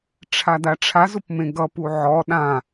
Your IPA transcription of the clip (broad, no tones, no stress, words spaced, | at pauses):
ʈ͡ʂʰadaʈ͡ʂʰaz ʊpmẽɡʌ puʕɔ ɗã